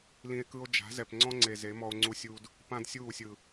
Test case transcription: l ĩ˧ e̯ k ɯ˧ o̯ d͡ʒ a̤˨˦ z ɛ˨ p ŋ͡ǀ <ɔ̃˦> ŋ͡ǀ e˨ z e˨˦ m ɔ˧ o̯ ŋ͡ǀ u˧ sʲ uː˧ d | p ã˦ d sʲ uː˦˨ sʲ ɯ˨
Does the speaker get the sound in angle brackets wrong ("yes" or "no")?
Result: no